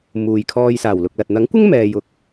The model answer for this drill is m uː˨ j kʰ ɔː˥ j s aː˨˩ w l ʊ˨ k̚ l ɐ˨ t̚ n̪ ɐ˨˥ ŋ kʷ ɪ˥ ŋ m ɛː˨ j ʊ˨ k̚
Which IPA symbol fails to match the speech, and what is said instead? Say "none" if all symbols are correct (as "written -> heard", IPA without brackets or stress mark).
ɔː˥ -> ɔː˧